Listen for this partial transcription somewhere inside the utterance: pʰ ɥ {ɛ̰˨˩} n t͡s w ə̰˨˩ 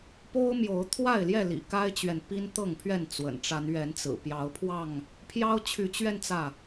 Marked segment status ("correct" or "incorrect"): incorrect